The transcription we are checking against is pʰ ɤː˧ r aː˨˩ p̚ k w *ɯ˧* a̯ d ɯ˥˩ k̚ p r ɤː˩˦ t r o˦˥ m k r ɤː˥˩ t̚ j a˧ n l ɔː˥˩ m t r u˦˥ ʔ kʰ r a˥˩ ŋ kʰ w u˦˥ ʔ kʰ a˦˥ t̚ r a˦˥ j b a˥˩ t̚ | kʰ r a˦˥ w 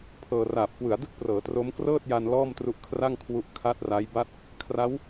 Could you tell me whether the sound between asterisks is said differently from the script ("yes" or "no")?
yes